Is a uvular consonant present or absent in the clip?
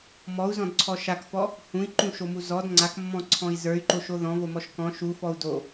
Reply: absent